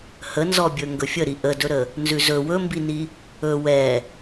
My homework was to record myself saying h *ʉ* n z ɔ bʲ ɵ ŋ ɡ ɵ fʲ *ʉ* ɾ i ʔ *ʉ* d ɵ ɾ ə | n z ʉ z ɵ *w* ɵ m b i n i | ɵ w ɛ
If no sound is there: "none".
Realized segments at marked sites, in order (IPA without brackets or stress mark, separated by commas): ə, ə, ə, w